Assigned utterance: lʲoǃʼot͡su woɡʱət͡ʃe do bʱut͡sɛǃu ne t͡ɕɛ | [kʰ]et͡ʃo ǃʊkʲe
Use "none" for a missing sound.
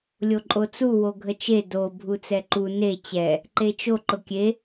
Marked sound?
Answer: ǃ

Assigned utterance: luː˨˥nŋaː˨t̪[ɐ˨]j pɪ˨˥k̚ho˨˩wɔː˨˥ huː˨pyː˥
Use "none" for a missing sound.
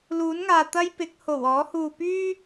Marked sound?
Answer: ɐ˥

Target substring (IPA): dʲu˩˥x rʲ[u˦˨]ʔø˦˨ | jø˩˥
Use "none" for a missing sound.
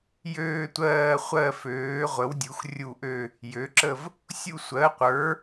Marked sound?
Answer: u˦˨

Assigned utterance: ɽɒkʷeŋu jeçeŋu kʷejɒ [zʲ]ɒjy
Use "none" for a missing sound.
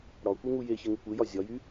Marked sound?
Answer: zʲ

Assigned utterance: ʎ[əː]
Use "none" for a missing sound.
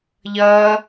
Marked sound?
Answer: ʌː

